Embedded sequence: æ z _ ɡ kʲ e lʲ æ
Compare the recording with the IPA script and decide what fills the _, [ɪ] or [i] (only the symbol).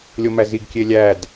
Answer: i